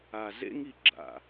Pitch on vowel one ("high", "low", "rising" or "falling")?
low